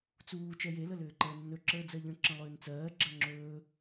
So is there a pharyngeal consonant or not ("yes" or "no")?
no